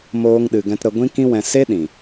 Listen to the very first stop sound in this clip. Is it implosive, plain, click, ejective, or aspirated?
implosive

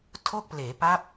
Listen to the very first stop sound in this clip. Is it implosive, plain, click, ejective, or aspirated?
aspirated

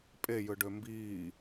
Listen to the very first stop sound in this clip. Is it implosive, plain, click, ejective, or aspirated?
ejective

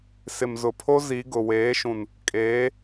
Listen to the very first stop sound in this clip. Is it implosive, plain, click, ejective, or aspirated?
aspirated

